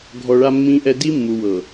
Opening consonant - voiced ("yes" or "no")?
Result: yes